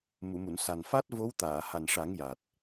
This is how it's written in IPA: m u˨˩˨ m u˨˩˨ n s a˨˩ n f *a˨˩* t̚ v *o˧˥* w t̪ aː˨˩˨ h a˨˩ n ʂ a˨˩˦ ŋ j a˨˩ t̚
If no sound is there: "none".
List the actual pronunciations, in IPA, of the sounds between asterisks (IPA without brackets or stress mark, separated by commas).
a˦˥, o˧˥